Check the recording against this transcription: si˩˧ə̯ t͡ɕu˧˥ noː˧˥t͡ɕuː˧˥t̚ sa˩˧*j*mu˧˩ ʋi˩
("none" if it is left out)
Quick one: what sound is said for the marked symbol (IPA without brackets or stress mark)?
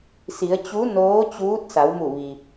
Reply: w